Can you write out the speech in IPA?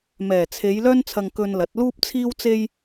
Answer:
mɛː˨˩t͡sʰe˨˧j lœː˥nt͡sʰɐ˧ŋ kɵ˧nlɐ˨˥t̚luː˥p̚ t͡sʰiː˥wt͡se˥j

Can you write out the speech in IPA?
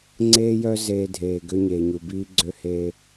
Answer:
ŋ͡ǀeː˦jœ˦ zeː˧dʱeː˨ ɡø˦ ɲeː˨ɲu˨biː˦ ɡ͡ǀø˦heː˦

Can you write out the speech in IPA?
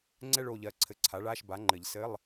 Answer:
ŋ͡ǀɛ˥˧ɭ o˧˥˧ʎɜ˧˥ǀʰɘ˧˥˧ ǀʰa˩˥ɭa˧˥˧ʃba˩˥ŋ͡ǃɘ˨˩˦ʎ sɘ˧˥˧lˠ

